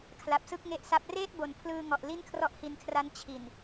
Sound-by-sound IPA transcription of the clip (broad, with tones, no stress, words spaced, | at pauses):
kʰla˨˩p̚sɯ˥˩k̚ŋe˦˥ʔsa˦˥p̚ reː˥˩t̚bo˨˩n pʰlɯː˧ŋɔ˨˩ʔ li˥˩nkʰrɔ˥˩ʔhi˧nkʰra˦˥n t͡ɕʰi˨˩n